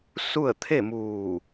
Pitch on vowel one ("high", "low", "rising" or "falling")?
falling